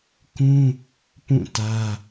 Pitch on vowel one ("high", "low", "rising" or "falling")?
high